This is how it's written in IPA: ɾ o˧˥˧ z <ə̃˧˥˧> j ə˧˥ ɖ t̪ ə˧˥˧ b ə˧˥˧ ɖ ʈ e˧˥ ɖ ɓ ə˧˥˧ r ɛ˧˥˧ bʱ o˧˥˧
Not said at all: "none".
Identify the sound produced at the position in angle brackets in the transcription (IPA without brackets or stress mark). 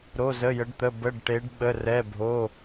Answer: ə˧˥˧